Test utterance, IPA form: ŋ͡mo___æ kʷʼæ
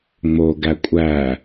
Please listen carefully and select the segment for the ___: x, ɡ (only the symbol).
ɡ